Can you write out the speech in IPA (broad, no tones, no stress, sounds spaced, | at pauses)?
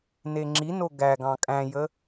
n e ŋ͡ǁ i n o ɡ æ ɡ ɑ̃ kʼ æ̃ j ə